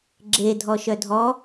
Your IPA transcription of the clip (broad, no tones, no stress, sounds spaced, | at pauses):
ɡ͡ǁ e dʱ ɔ ʃ œ dʱ ɔ